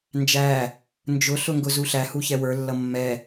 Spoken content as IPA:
n d͡ʒ æ | n d͡ʒ ʊ ɬ ʊ ŋ ɡ ʊ z u ɬ æ h u ç ɛ w ə˞ lː ʌ mː ɛ

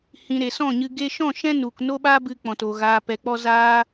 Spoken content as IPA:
h ĩ˨ ɾ e˨ s ɔ̃˦˨ ɲ ɨ˧ ɡ e˧ ʃ ɔ̃˦˨ ʃ ɛ̃˦ n u˨ k n o˦ ɓ a˦ b ɨ˧ k͡p ɔ̃˨ t o˨ ɣ aː˨ p ɛ˨ k͡p ɔ˧ z aː˦

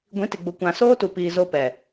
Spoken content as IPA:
ɡʷ ĩ˨˦ t ɪ˨ ɡ͡b ʊ˨ kʷ ã˨ s oː˦ t u˨ p iː˨ z o˦ p ɛ˨

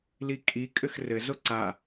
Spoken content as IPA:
l i kʼ i kʼ ɘ x r ɘ z o ǀ a

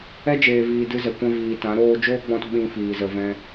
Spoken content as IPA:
ɛ˦ d͡ʒ eː˨ v iː˨ d ɨ˧ z ɛ˨ kʷ ɛ̃˧ v iː˨ t ã˨˦ ɾ oː˧ d͡ʒ oː˦ ɡ͡b ɔ̃˧ t ɓ ĩ˧ f iː˨ z ə˧ v ɛ̃˧

